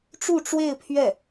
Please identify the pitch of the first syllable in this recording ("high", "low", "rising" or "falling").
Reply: falling